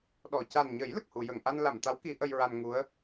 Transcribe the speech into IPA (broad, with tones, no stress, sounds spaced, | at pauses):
ɗ ɔ˨˩˨ c a˨˩ n ɲ ə˨˩˦ j l ə˨˩ k̚ h u˨˩˨ j ə˨˩˨ ŋ ʔ a˧ n l a˨˩˨ m t̪ a˧˥ w k i˨˩˦ ʔ ə˧ j ɹ a˧ n ŋ u˧˥ ə̯